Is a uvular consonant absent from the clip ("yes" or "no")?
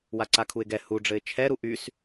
yes